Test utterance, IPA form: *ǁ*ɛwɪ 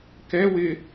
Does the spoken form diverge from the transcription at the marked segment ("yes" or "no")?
yes